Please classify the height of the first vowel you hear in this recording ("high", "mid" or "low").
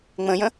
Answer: mid